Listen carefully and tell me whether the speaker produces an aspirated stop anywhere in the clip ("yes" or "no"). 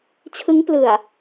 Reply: yes